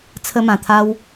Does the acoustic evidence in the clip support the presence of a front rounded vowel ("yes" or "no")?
no